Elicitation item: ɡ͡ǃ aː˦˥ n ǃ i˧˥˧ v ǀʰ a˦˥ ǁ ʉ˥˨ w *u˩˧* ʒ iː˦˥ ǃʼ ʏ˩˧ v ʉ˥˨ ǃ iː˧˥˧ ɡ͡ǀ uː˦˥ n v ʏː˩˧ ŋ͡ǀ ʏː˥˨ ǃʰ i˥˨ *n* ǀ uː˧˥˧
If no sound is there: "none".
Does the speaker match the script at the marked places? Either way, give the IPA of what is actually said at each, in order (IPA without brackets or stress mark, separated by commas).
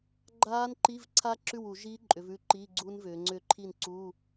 u˧˩˧, n